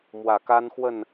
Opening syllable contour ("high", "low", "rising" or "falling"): low